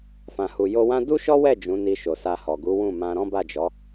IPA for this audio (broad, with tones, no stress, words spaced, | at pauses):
fã˨hu˨ jo˧wã˦ du˦ʃɔ˦wɛ˦˨ d͡ʒũ˨˦ni˧ʃo˨sa˧ hɔ˨ɡu˨˦wũ˦˨mã˧ ɾɔ̃˦ba˦˨d͡ʒɔ˨˦